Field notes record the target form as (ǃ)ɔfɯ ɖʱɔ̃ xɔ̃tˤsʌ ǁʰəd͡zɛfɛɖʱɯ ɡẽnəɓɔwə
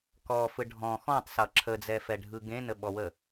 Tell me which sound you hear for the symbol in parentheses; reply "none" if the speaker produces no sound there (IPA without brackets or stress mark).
k